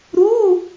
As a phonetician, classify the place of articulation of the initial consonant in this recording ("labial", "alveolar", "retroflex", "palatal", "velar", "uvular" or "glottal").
alveolar